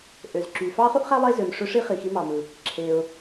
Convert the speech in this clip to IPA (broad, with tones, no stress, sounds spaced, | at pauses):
ʔ ø˩ z ǁ y˩ f ɑ˥ χ u˥ ʔ χ æ˥ lˠ e˥ z ø˩ m ʂ ø˥ ʂ i˥ χ i˩ x i˥ m ɑ˩ m ɯ˩ | ǁʰ e˩ ʊ̯